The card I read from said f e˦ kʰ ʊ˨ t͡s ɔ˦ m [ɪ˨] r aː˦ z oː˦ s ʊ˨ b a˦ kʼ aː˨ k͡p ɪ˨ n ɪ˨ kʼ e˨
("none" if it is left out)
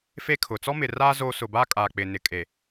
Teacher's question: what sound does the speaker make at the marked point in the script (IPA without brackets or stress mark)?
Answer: ɪ˨